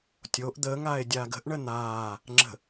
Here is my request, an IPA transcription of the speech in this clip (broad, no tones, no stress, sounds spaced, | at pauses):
tʲ o ʔ d̪ əː ŋ aː e̯ dʲ aː ɡ ə̤ ʔ ɳ ə n̪ aː | ŋ͡ǁ ə̤